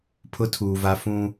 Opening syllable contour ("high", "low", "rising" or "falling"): high